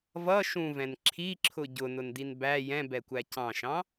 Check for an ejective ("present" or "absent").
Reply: absent